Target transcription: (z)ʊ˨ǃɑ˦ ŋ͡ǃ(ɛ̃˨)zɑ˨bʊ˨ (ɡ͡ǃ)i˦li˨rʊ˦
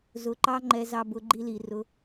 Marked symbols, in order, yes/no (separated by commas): yes, no, yes